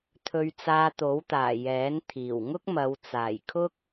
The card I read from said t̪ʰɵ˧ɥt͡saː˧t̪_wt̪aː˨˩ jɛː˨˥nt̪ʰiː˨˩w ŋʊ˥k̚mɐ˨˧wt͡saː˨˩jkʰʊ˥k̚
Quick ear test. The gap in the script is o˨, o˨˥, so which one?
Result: o˨˥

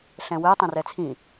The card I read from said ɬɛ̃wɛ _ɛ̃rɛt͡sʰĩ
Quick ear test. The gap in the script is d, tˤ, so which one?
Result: tˤ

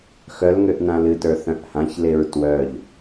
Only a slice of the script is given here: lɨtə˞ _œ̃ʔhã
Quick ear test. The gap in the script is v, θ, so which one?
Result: θ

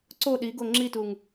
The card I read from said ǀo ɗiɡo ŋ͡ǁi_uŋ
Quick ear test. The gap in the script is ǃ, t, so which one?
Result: t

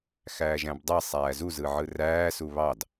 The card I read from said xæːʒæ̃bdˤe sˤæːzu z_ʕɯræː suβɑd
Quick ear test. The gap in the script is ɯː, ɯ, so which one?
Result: ɯ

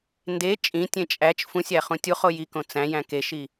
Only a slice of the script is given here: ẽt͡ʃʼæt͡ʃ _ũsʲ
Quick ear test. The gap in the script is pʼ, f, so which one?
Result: f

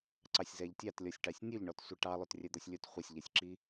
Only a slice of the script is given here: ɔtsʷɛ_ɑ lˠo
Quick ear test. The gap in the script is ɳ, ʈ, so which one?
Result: ʈ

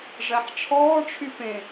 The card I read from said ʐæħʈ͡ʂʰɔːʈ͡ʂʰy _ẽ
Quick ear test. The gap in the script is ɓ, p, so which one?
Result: p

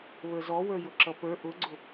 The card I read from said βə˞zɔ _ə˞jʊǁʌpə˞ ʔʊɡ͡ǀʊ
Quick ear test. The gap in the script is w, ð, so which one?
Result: w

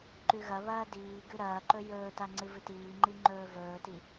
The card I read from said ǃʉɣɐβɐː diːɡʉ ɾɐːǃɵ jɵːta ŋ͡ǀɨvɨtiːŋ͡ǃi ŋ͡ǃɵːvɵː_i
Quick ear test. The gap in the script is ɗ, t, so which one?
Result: t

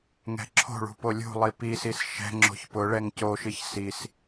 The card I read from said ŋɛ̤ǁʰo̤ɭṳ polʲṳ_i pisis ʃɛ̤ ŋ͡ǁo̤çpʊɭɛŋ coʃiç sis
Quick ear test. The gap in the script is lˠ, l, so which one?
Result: lˠ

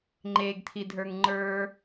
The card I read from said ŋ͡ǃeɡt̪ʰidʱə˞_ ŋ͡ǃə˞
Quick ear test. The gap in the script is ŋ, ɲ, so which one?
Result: ŋ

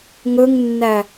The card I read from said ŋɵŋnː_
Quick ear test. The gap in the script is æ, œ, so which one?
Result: æ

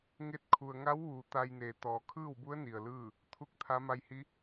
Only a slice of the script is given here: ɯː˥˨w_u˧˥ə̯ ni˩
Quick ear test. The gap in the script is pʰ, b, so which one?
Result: b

